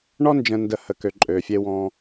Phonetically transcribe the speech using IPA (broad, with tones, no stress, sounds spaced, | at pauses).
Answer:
ɳ ɔ˦ n d͡ʒ ə̃˨ n d ə˨ h ə˩ k ø˩ ǃʼ ø˩ fʲ e˨ w ɔ̃ː˨